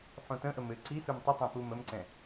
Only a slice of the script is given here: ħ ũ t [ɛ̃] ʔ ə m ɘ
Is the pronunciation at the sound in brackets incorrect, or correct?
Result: incorrect: ə̃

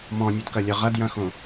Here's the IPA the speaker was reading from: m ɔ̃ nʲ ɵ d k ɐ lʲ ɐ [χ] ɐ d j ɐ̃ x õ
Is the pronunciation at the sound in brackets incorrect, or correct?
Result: incorrect: ʁ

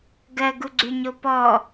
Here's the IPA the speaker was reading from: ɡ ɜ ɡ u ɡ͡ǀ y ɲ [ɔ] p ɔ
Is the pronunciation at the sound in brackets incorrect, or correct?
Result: incorrect: o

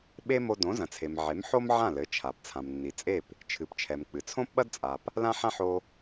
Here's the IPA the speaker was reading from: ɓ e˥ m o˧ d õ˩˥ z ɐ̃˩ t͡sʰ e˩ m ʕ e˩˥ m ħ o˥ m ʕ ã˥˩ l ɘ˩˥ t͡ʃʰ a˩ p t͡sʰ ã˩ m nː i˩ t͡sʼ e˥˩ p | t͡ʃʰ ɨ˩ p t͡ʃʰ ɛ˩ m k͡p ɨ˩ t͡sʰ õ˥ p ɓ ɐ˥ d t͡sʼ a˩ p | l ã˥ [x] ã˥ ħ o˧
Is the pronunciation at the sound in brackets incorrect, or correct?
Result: incorrect: ħ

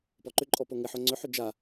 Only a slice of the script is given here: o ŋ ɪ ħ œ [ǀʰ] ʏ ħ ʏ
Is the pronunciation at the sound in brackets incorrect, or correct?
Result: incorrect: ŋ͡ǀ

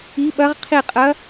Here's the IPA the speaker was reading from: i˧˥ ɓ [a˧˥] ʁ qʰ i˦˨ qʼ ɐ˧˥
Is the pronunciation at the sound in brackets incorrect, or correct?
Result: incorrect: ɐ˧˥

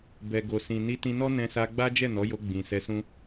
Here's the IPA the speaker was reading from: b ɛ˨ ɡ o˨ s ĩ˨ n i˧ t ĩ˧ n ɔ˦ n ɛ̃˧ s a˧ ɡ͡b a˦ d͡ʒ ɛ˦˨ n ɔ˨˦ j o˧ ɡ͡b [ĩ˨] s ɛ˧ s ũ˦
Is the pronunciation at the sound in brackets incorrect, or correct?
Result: correct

